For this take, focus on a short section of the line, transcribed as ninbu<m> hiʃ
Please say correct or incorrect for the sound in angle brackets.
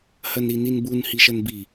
incorrect